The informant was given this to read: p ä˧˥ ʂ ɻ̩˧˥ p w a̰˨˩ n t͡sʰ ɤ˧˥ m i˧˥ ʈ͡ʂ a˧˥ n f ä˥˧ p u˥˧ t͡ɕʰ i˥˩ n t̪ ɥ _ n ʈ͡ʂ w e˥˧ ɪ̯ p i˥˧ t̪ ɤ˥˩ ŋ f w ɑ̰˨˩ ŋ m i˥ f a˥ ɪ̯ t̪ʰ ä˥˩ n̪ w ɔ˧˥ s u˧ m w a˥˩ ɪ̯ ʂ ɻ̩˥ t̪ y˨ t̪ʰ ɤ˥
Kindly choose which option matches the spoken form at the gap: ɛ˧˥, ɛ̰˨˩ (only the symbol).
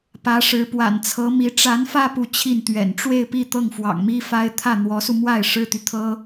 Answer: ɛ̰˨˩